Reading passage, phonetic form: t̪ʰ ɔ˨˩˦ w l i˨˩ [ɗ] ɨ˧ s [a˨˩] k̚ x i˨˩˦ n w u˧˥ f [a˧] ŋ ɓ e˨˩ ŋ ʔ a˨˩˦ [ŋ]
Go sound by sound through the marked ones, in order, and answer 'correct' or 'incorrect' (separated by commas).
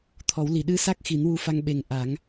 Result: correct, incorrect, correct, correct